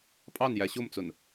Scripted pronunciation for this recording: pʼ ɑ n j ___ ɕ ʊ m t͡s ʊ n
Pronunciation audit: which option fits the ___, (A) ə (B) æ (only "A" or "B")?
B